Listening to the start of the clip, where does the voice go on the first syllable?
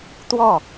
falling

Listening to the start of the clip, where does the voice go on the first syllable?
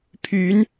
rising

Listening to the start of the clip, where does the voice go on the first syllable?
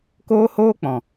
high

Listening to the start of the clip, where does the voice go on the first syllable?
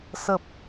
low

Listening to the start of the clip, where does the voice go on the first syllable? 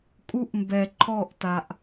high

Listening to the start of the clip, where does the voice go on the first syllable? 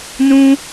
high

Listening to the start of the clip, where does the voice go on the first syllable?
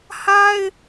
high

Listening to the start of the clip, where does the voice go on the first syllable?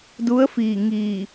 rising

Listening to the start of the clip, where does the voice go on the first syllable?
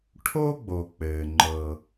high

